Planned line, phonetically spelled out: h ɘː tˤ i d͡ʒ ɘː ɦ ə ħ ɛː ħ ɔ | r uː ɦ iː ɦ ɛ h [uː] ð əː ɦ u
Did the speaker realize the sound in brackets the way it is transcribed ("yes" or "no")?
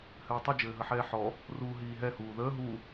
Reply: yes